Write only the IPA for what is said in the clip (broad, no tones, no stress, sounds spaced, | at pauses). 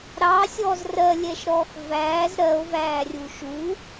ɾ ɑ sʲ ɔː z r ɜ lʲ ɛ ʃ ɾ ɔː x v æː z ɾ ɜ o̯ v æː rʲ u ʃ u